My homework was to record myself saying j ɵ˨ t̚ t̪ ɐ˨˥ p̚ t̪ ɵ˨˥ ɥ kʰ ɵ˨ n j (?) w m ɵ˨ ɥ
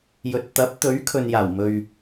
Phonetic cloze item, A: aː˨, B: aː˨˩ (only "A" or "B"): B